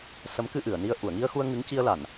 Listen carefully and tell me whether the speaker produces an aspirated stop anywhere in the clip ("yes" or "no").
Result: no